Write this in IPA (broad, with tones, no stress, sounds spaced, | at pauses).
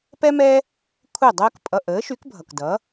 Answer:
p ɛ˥ m ɛ˥ | kʷʰ ɛ˥˩ dˤ əː˥ k pʼ ʌ˧ ʔ əː˩˥ ʃ y˩˥ k bʱ ʌ˩ k d ʌ˩˥